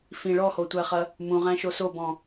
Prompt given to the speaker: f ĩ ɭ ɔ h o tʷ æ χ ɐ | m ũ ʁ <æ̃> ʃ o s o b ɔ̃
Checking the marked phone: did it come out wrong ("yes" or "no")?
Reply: no